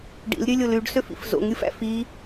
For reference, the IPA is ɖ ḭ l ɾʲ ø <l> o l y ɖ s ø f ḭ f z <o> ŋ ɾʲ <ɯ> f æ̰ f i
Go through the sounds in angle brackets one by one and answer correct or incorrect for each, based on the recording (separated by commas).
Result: incorrect, incorrect, correct